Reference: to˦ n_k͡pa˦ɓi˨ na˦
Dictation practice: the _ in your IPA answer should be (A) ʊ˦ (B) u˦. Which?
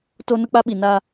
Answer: A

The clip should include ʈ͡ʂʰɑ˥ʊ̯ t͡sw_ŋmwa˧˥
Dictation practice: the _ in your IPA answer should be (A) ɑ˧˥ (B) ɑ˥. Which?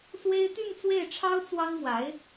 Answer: B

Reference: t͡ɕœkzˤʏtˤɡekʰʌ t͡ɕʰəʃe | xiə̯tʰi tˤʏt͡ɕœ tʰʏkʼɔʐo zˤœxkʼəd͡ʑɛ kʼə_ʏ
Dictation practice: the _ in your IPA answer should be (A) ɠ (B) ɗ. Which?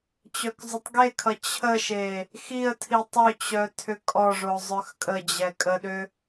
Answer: B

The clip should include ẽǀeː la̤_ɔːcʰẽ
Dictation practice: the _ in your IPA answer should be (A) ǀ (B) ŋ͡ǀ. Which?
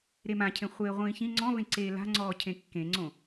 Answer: B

